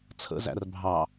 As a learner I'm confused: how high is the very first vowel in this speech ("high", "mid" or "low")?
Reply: mid